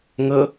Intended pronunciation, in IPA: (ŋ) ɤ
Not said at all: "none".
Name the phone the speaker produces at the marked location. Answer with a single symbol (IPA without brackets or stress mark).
ŋ